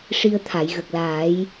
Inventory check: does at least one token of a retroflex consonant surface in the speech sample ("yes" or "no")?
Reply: yes